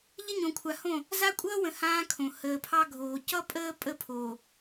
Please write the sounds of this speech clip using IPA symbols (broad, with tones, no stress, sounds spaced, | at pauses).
ʎ ə˦ ɲ õ˨ kʷʰ a˨ h õ˦˨ | z a˦ kʷʼ ʌː˦ w ə̃˨ h ãː˦ kʰ õ˨ h əː˨ pʰ ɑ˦ ɡʱ oː˨ c ʌ˦ pʼ əː˦ pʼ ə˦ pʰ oː˨